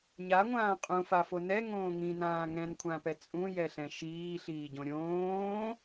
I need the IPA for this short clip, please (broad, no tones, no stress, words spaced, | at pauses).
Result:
ɲaŋʷãː qʼũfafo nɛŋõː ŋĩnãː ŋɛ̃nkʷʰãpɛ t͡sʼũjɛɬɛ̃ ʃiːɬiːɟõ ɾʲõː